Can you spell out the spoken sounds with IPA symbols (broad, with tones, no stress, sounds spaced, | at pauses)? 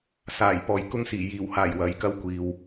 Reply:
s aː˨˩ j p ɔː˨ j k ʊ˥ ŋ s iː˨˩ j iː˨˩ w h aː˨˩ j w ɐ˨ j k ɐ˥ w kʷ iː˨ w